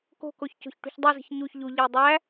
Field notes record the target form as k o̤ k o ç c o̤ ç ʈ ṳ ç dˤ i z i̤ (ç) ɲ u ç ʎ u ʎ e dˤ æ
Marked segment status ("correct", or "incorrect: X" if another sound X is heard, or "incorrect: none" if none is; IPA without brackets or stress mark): correct